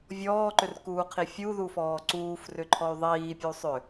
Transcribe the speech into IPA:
vʲ ɔː ǃ ʏ r k uː qʰ i fʲ u ð u f ɔː ǀ uː f r ʏ ǃʰ ɔ y̯ ðˤ iː pʲ u sˤ ʏ

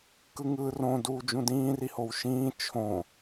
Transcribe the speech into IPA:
k ɯ ŋ ɯː r õ d uː d͡ʒ ũ d ĩː r i h o w ʃ ĩː t͡ʃʰ õ

